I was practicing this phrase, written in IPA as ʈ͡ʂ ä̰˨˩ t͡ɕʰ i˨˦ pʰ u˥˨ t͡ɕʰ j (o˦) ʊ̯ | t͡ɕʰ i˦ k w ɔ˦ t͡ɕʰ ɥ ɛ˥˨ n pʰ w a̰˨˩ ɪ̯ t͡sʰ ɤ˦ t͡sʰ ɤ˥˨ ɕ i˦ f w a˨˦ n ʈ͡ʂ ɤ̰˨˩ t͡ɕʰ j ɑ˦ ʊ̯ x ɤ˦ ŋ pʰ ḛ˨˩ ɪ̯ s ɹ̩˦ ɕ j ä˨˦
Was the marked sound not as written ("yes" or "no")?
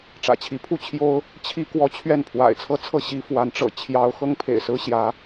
no